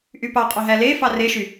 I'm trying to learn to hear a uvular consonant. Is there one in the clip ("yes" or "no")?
yes